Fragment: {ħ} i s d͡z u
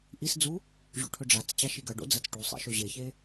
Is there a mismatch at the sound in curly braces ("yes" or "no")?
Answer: yes